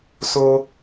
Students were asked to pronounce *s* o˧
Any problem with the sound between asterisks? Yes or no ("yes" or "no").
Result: no